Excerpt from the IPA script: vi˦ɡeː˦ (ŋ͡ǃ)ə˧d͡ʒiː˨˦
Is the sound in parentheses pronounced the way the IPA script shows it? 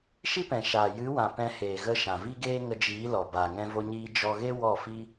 no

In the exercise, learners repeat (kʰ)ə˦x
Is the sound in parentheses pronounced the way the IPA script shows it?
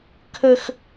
yes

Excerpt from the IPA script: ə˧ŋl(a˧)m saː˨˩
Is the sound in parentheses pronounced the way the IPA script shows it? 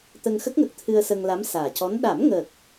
no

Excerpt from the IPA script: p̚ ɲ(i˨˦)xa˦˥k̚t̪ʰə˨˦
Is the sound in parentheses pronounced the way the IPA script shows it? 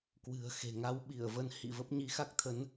yes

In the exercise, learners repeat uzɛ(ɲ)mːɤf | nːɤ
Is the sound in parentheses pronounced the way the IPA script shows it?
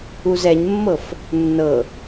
yes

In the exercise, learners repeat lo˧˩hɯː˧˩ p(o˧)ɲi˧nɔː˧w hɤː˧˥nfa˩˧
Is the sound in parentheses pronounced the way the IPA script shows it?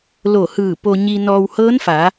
yes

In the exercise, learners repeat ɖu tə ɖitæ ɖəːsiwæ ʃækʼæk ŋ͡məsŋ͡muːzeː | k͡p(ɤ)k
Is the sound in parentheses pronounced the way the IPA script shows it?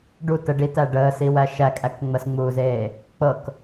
yes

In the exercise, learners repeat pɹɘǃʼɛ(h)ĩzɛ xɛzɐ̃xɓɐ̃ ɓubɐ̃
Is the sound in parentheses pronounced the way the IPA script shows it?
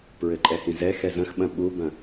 yes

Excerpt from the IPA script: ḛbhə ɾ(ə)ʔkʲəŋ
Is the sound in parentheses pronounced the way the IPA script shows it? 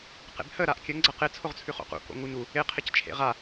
no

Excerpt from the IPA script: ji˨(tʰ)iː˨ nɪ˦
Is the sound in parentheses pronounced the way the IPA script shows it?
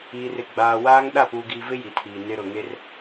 yes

